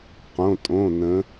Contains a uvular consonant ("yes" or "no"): yes